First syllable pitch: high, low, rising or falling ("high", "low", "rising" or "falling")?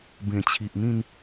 low